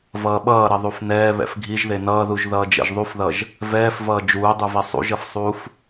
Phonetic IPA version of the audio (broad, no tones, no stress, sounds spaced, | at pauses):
v ʌː ɓ ʌː ɾ ʌ ðˤ u f n ɛː β ɛ̰ f ɡʱ i ʒ ð e n ʌː ð u ʒ ð ʌː d͡ʒ ɛ̰ ʒ ðˤ u f ð ʌ ʒ | v ɛː f v ʌː d͡ʒ uː dˤ u v i sˤ ṵ ʒ ʌ f sˤ uː f